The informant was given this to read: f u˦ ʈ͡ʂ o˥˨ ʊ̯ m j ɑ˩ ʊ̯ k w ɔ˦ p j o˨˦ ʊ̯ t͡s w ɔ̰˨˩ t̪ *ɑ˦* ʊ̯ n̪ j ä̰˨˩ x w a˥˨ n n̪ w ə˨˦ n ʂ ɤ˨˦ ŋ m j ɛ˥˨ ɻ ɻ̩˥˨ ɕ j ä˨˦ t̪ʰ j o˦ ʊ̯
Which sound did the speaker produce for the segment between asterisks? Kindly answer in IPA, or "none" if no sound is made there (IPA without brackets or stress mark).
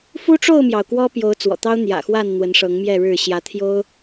ɑ˦